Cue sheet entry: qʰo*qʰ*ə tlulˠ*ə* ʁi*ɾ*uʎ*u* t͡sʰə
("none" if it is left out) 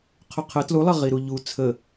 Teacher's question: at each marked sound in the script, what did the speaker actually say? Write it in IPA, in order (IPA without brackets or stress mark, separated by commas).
qʰ, ɐ, ɾ, u